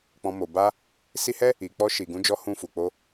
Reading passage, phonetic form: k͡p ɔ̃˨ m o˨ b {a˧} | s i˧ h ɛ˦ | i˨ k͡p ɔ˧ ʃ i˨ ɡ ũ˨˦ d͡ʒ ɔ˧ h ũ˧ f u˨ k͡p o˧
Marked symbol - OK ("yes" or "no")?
yes